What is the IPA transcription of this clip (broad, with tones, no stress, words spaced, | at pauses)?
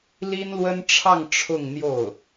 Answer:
li˥nlwə˥nʈ͡ʂʰɑ˥˧ŋ ʈ͡ʂʰʊ˥˧ŋn̪jo˥˩ʊ̯